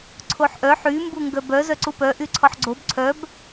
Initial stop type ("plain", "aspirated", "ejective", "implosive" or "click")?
click